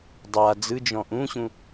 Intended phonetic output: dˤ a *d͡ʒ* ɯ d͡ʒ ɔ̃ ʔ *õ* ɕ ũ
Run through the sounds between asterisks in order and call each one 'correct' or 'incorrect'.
incorrect: d͡z, incorrect: ũ

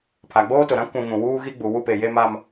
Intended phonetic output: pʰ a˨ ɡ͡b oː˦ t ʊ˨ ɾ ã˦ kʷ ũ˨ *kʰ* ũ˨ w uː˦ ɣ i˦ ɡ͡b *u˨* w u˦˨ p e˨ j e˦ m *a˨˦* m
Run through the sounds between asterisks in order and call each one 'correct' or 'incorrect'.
incorrect: ŋ, correct, incorrect: a˦

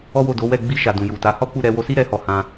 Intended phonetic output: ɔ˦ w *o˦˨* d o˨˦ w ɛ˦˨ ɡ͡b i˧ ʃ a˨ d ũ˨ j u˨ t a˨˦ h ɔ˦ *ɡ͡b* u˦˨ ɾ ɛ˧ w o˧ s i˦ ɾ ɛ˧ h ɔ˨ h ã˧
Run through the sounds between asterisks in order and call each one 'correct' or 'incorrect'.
correct, incorrect: k͡p

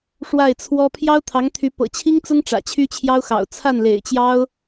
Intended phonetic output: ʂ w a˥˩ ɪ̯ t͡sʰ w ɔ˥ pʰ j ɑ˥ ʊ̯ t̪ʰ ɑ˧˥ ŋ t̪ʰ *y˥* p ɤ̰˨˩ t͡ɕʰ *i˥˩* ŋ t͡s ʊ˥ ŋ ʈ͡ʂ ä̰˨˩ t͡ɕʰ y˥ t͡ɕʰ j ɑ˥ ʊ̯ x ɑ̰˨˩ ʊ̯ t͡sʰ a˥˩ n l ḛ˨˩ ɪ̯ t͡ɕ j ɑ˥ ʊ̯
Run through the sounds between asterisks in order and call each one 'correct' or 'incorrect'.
incorrect: y˧˥, incorrect: i˥

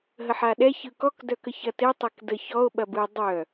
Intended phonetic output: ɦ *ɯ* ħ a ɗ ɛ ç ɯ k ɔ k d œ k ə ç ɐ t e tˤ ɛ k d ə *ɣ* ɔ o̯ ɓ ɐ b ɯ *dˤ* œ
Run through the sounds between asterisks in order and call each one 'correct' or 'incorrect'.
incorrect: ə, incorrect: ç, correct

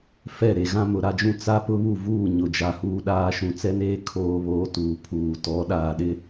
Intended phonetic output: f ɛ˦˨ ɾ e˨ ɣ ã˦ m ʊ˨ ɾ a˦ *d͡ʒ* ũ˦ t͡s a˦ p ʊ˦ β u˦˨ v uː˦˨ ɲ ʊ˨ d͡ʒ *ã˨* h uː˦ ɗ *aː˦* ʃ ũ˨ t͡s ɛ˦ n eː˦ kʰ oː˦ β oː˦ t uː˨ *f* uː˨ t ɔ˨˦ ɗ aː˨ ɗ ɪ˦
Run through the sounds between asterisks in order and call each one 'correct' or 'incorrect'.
correct, incorrect: a˨, correct, incorrect: pʰ

